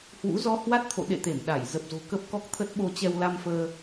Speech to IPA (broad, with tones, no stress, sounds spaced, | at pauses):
h w ṵ˧˥ z ɔ˧ h w a˦˥ t̚ t̪ʰ o̰˧˨ ɗ ḛ˧˨ t̪ e˧˩ m ɗ a˧˩ j z ə˨˩ p̚ z o̤˨˩ k ə˦˥ p̚ k ɔ˦˥ k̚ t̪ʰ ə˦˥ t̚ ɓ o˧ t͡ɕ ɛ˧ w l a˧ m f əː˧